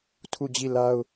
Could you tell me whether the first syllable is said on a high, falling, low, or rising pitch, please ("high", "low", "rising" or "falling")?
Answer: falling